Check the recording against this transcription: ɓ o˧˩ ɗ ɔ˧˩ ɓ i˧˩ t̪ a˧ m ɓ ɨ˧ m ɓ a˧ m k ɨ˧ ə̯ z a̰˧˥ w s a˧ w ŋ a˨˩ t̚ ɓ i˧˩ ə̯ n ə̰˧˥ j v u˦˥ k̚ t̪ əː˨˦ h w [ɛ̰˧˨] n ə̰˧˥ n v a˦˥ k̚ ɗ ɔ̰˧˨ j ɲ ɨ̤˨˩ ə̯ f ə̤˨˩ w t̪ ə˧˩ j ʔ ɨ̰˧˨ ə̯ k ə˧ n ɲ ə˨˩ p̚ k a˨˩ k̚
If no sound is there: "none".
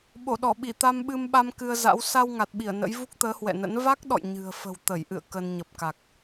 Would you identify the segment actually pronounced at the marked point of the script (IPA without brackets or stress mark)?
ɛ̰˧˨